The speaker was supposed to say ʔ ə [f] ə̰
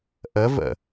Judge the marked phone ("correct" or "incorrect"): incorrect